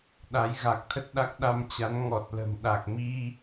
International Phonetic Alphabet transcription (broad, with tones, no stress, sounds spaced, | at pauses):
ɗ a˨˦ j ɣ a˨˩ k̚ t̪ʰ ə˦˥ t̚ ɗ a˦˥ k̚ ɗ a˧ m t͡ɕ a˨˦ n ŋ ɔ˨˩ t̚ l ə̤˨˩ m ɗ a˨˩ k̚ m i˧